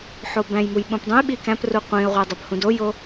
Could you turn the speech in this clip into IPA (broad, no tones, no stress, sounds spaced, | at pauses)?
ħ o b æ̃ j m u j ɓ ũ p dˤ ũ j ɓ i k æ̃ p r u qʷ ĩ ə̯ ʁʷ i dˤ i p h ũ d o j o